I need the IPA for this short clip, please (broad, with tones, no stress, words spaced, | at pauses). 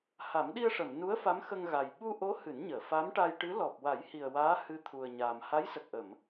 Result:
ha˨˩˦mɗi˧ə̯ʂə˨˩˨mnu˧˥ə̯ fa˧˥mxə˧ŋɣa˨˩j ɓu˧ʔo˧˥ hɨ˨˩˦nɲəː˨˩˨ fa˧˥mʈa˧jʈɨ˧˥ lɔ˨˩p̚wa˨˩˦jhi˨˩ə̯ waː˧˥hɨ˧˥t̪ʰu˨˩ə̯ ɲaː˨˩m ha˧˥jsə˨˩k̚ʔə˨˩˨m